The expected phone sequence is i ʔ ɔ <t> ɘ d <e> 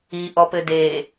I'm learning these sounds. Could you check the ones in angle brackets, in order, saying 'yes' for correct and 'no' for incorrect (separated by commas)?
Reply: no, yes